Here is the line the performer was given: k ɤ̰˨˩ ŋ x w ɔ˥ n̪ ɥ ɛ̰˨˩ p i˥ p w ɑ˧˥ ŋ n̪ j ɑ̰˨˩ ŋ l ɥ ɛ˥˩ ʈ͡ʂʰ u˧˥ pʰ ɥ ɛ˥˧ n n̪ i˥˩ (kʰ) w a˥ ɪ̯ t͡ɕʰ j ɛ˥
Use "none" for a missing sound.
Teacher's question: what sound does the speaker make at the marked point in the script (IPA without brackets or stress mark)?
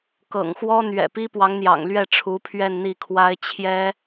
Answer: kʰ